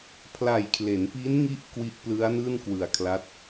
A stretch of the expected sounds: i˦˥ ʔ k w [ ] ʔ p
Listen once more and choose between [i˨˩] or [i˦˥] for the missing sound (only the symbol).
i˦˥